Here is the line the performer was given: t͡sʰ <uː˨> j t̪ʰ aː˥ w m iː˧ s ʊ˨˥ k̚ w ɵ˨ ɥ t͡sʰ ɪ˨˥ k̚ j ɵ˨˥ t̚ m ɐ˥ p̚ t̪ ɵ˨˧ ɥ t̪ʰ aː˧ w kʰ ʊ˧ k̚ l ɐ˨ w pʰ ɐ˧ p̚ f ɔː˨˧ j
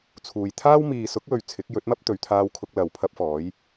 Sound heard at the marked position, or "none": uː˨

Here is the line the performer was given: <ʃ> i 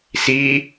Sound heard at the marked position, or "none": s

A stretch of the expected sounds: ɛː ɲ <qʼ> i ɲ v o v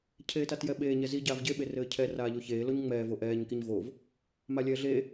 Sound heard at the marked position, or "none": k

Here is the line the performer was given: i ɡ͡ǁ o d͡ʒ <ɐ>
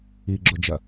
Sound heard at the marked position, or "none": ɐ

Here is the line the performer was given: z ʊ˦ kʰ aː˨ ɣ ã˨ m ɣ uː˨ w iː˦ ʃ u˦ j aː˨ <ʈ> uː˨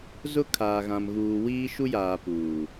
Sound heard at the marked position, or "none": p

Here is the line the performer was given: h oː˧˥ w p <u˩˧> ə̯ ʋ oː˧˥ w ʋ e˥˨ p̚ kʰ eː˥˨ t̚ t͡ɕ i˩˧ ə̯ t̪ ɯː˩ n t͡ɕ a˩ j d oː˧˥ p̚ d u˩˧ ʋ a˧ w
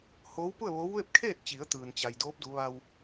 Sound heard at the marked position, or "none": u˥˨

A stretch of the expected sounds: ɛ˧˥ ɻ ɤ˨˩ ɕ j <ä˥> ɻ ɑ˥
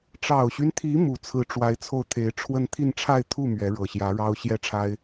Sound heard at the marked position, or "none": ä˧˥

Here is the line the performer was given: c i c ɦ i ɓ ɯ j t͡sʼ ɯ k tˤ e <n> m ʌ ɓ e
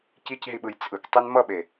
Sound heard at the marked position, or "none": n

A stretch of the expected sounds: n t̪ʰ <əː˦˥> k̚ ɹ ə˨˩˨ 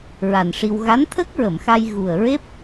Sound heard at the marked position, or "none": ə˦˥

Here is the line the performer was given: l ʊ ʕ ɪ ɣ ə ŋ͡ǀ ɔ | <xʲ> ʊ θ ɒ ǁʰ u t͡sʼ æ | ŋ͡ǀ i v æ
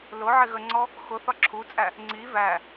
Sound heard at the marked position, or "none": x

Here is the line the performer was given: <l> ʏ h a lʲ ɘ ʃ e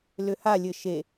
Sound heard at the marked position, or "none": l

